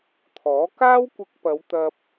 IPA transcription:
t̪ʰ ɔː˨˥ k aː˥ w kʷ ɪ˧ k̚ p ɐ˨˧ w t̪ ɐ˧ p̚

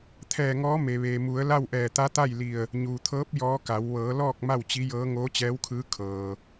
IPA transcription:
t̪ʰ ɛː˧˩ ŋ ɔː˧˥ m e˩ ʋ eː˩ m u˩˧ ə̯ l a˥˨ w ʔ ɛː˧˩ t̪ a˧˥ t̪ a˥˨ j l i˧˩ ə̯ | ɲ uː˩ t̪ʰ ɤː˧˥ p̚ j ɔː˧˥ k a˩˧ w ʋ ɤː˩˧ l ɔː˥˨ k̚ m a˥˨ w t͡ɕ i˧˥ j ɤː˧˥ ŋ oː˧˥ t͡ɕ ɛː˧˥ w kʰ ɯː˧˥ kʰ ɤː˩

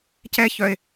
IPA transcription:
c ɛ ç œ e̯

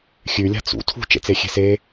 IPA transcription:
xʲ ʉ lʲ a̤ t͡s ṵ tʰ ṳ t͡ʃ ḛ t͡s e xʲ e̤ s e

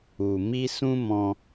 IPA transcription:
u˨ m i˧ s ũ˦ m ɔ̃˧

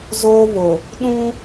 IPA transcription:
z oː˦ β ʊ˨ | ɗ ũ˦

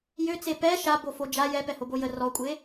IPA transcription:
j ø t͡s e p ɛ ʃ a b o f o d͡ʒ a j ɛ p ɛ h o b o j ə r ɔ kʷʼ e

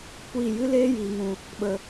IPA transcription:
kʷ iː˦˨ j ɨ˦ l eː˦ j iː˨ ŋ ũ˨ | ɓ ə˨

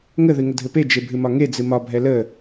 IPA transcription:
ŋ ə ð ɨ ŋ ə dʱ ɘ p e d͡ʒ e bʱ ɨ m ɒ ŋ e d͡z ɨ m ɒ bʱ ɛ l ə

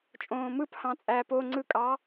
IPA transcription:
t͡ʃʼ õː m ɯ p h ɑ̃ t͡sʼ æː p o ŋ͡ǀ ɯ kʼ ɑ

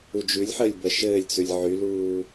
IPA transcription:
u d͡ʒ ʉ lʲ ħ əː lʲ b ə ʃ ɘː lʲ t͡s ʉ lʲ ʕ y l uː

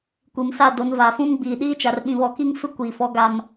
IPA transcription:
kʷ i˨ m s a˦˨ d o˨˦ n v aː˨ f ũ˦ m ɡ͡b iː˨ ɗ iː˦ t͡ʃ a˨ r ɓ ĩ˨ β ɔ˨ k i˦ ŋ f ɪ˦ kʷ iː˨ f ɔ˦ ɡ a˦ m

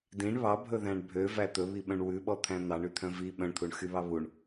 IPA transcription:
d ĩ ɳ β ɑ bʱ ɵ ð æ̃ ɳ bʱ ø v æ t̪ ɵ β i ɓ œ̃ ɳ w ʉ ɓ ɔ t̪ʰ æ̃ n̪ ɑ ɳ y t̪ʰ œ̃ v i ɓ œ̃ ɳ t̪ʰ u ɳ x y β ɑ β u ɳ

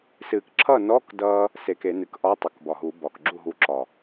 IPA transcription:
s ɨː˨˩˦ k ǁʰ ʌː˥˩ n ɔː˧˥˧ k d ʌː˧ | s e˨˩˦ k e˨˩˦ n ɨ˨˩ k ʔ ɒ˧˥˧ tˤ ʌ˨˩ k b ɒ˨˩ ɦ uː˨˩˦ b ɒ˨˩ k ɡ͡ǁ u˥˩ ɦ u˧ ǁ ɒ˨˩

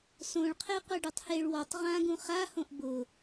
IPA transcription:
s õ ɭ qʰ e qʷ a ɖ u tˤ h e ɭ w ɔ tˤ ʁ ã ɡ ũ χ a h õ ʔ b ʊ

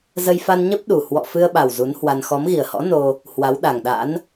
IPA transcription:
z ə˧ j f a˧ n ɲ ə˦˥ p̚ ɗ u˨˩ h w ɔ̰˧˨ f ɨ˧ ə̯ ɓ a˨˩ w z u˨˦ n h w a˧ n x ɔ˨˦ m ɣ i˨˩ ə̯ h ɔ̰˧˥ n o˧ | h w a˨˦ w ɗ a˨˩ ŋ ɗ a̰˧˥ n

